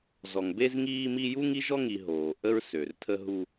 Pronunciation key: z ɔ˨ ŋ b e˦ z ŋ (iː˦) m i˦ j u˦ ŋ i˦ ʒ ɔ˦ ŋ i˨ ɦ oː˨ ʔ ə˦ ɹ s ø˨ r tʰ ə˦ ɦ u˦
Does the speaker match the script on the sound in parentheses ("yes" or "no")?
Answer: yes